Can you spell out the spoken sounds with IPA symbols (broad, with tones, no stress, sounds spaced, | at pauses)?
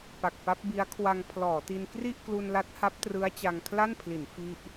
p a˨˩ k̚ p a˦˥ p̚ b i˦˥ a̯ kʰ w a˧ ŋ pʰ l ɔː˩˦ t i˧ n k r i˥˩ ʔ k l u˧ n l a˦˥ t̚ h a˦˥ p̚ t r ɯ˦˥ a̯ t͡ɕ a˧ ŋ kʰ l a˥˩ n pʰ l i˩˦ n f i˥˩ ʔ